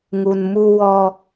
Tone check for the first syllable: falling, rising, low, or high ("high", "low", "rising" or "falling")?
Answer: low